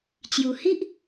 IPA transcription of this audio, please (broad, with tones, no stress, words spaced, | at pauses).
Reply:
t͡ɕju˨˩hi˦ʔ